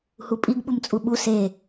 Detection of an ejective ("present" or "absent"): present